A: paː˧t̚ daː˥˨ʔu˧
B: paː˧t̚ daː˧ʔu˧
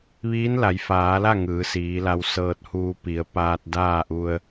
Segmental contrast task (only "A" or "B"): A